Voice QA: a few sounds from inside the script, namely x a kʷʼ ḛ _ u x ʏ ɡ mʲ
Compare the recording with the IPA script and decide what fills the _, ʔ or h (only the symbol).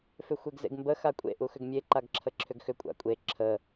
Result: ʔ